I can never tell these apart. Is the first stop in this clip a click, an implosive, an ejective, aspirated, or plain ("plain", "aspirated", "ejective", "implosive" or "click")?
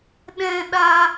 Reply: implosive